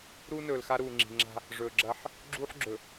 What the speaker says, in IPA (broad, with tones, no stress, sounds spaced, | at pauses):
ɾ uː˦ n ɵː˨ l x a˦ ɾ uː˨ ŋ͡ǁ i̤˨ ŋ͡ǁ a̤˦ | ʐ ɵː˨ ɡ͡ǁ ɐ˦ ħ | ɡ͡ǁ uː˦ ħ ɡ͡ǁ ɵ˨